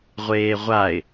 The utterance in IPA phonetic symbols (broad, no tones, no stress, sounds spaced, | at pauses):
ʁʷ eː ʁʷ a ɪ̯